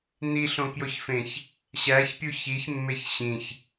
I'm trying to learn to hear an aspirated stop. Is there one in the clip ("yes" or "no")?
no